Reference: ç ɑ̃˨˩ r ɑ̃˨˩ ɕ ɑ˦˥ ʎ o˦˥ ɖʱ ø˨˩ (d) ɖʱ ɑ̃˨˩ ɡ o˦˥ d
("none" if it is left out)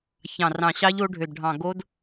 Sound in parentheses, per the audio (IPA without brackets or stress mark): d